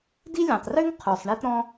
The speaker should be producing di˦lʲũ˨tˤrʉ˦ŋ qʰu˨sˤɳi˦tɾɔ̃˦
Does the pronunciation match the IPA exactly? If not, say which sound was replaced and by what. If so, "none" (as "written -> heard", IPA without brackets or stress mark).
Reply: none